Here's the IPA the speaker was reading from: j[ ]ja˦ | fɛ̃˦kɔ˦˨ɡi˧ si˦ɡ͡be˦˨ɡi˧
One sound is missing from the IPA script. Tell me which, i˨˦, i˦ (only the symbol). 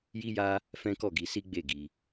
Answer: i˦